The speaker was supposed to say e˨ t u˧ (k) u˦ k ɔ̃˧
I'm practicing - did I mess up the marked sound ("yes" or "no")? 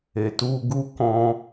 yes